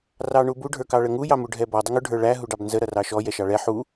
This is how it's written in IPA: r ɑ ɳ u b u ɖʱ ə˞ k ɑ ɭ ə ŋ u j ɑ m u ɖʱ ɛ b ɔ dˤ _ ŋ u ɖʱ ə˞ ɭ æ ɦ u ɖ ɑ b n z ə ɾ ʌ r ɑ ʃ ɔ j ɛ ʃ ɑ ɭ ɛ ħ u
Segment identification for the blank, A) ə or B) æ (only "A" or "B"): A